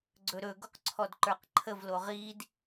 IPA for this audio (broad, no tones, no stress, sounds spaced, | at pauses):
ɡ͡ǀ ɵ ɾ ɵ ɡ o q ǀʰ ɔ d ǃ ə˞ q ǃʰ ə v l o ʁ i d